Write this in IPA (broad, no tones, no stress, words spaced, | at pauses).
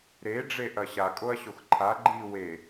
ɾe ɖ͡ʐeʔɐɕa kʼoɐ̯ɕoxǃʰa ɡ͡ǃi we